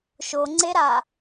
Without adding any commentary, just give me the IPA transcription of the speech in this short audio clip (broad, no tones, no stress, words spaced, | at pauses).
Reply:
ʃoŋ͡ǀeɾa